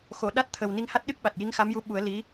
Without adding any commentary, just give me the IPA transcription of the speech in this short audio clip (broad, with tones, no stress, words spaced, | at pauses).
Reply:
xo˨˩˨ɗa˦˥t̚ t̪ʰə˨˩w ni˧ŋha˦˥t̚ɗɨ˦˥k̚ɓa˨˩t̚ ji˧˥ŋxa˧˥mju˧˥ ɓu˨˩˦ə̯ li˧˥